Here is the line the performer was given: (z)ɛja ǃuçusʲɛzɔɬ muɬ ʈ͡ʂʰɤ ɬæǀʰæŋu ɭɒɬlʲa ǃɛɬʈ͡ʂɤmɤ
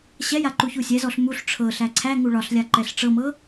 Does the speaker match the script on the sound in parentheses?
no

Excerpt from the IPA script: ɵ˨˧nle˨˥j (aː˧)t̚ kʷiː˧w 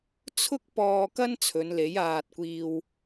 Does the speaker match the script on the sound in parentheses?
yes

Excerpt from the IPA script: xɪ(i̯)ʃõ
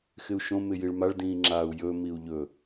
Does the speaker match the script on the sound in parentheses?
no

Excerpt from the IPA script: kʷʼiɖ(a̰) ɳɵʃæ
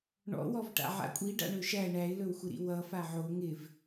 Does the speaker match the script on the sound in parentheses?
yes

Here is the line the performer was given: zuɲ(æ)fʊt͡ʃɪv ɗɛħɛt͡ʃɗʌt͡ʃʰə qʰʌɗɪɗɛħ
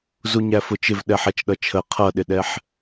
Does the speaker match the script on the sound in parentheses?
yes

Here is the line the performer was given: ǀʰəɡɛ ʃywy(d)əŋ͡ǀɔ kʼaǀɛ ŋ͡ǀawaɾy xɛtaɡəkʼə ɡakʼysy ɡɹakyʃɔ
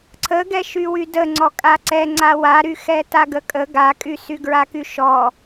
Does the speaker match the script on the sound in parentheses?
yes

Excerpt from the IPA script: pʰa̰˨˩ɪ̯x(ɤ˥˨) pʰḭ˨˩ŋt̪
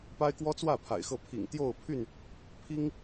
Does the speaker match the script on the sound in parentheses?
yes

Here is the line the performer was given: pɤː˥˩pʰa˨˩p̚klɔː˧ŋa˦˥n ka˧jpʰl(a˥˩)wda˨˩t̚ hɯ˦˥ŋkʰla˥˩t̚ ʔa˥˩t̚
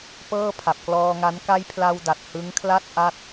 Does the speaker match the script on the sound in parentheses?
no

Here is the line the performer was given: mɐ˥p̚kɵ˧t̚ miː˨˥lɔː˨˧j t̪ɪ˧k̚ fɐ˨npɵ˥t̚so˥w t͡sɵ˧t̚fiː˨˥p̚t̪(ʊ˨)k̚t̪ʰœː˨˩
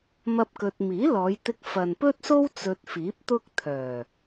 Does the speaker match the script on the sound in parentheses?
no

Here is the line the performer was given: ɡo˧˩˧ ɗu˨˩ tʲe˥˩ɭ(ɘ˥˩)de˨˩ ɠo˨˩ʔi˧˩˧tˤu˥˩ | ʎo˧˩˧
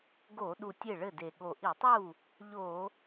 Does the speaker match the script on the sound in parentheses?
yes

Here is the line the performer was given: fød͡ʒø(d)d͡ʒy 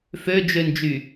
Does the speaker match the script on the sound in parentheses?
no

